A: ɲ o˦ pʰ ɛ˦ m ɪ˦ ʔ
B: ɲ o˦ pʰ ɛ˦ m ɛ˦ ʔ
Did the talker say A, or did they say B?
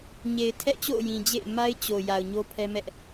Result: B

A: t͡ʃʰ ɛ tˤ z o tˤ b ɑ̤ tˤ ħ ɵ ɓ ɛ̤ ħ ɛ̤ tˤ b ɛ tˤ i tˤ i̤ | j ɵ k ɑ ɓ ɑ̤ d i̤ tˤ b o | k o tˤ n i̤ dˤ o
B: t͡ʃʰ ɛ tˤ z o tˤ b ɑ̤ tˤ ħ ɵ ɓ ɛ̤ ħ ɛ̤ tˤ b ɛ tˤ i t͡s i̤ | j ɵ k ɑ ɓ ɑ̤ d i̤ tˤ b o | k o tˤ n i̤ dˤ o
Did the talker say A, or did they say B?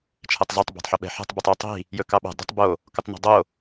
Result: A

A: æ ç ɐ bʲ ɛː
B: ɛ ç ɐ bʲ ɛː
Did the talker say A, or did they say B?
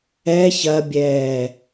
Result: B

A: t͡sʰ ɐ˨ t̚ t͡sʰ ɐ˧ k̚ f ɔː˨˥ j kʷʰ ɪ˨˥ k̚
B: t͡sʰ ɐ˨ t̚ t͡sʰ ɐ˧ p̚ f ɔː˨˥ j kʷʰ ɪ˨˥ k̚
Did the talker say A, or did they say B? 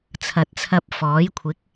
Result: B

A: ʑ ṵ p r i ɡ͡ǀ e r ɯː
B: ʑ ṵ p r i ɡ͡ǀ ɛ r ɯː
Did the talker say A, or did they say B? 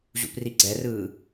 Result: B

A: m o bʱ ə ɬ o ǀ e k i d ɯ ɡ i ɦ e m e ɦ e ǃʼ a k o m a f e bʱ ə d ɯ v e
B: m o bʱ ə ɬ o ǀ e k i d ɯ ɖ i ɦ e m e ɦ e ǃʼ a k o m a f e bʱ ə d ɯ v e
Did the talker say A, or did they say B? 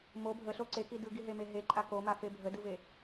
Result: A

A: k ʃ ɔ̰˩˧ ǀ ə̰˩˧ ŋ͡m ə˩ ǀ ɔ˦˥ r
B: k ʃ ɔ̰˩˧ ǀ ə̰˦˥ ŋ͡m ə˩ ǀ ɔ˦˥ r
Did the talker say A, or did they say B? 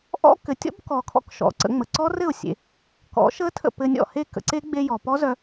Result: A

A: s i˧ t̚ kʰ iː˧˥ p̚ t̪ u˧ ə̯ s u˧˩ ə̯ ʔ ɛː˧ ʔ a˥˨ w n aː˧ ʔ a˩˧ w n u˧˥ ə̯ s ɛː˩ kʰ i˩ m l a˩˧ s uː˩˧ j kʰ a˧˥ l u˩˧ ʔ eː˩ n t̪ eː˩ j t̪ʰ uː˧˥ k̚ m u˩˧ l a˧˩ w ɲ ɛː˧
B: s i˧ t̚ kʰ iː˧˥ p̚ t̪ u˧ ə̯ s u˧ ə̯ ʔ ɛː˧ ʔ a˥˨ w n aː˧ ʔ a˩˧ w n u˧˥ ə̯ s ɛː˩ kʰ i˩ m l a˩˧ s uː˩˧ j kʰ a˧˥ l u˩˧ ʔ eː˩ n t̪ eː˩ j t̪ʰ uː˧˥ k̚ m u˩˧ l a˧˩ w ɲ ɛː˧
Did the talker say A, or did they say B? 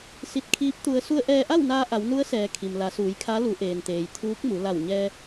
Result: B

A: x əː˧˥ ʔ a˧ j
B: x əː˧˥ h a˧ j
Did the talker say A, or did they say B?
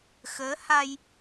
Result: B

